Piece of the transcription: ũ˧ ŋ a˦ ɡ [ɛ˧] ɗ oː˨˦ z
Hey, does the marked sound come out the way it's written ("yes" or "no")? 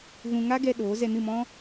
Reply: yes